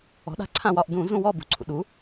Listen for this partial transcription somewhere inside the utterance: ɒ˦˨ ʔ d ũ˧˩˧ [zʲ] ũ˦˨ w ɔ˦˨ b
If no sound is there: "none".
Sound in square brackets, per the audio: z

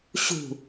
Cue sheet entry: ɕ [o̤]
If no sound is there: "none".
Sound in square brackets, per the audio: ṳ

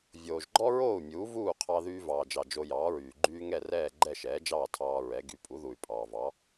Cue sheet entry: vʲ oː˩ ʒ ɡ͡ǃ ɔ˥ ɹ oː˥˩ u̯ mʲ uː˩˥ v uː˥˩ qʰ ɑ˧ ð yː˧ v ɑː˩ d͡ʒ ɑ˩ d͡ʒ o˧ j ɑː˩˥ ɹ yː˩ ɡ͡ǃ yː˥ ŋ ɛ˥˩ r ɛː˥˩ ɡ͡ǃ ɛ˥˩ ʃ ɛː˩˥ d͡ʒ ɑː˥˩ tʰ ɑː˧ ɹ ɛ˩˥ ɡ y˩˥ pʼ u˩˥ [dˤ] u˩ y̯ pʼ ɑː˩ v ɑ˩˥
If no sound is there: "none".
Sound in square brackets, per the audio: ð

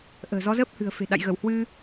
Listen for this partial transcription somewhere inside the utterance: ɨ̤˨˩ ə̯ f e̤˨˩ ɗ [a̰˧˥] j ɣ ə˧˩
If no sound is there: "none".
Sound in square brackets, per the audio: a̰˧˨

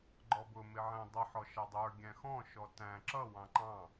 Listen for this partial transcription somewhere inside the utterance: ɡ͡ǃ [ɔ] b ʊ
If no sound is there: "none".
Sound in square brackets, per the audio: ɔ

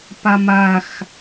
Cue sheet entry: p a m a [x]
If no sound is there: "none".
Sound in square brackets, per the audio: x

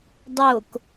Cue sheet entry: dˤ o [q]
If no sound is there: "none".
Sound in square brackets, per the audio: k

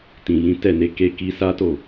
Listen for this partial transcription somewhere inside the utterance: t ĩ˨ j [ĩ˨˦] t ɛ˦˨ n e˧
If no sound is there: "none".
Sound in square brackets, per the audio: ĩ˨˦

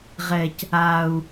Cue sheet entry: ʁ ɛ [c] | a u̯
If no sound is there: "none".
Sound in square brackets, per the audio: c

